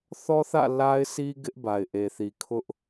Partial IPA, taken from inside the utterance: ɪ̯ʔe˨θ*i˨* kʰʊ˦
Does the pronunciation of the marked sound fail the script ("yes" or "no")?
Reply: no